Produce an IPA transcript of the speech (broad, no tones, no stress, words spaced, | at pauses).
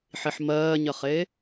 ħiħmɜːɲɜχe